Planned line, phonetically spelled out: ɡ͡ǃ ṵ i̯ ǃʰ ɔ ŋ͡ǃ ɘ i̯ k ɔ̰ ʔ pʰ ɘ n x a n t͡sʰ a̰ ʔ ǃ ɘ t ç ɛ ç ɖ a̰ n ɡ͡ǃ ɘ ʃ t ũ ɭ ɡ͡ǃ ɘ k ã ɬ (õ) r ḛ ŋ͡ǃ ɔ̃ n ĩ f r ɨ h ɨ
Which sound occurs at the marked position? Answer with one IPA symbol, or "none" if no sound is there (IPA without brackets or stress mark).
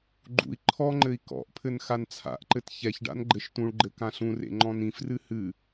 ũ